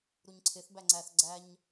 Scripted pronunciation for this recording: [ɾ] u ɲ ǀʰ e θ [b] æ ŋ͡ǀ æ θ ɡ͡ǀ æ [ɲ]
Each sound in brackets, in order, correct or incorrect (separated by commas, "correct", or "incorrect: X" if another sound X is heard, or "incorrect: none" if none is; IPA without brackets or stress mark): correct, correct, correct